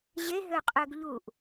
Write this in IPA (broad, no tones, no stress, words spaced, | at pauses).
ʑeɦøqʼøɡ ʎuʔ